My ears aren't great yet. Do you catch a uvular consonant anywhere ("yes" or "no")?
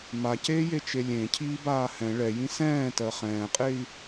yes